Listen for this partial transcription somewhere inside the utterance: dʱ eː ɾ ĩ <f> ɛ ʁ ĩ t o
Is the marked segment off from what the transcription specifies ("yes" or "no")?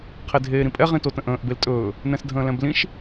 yes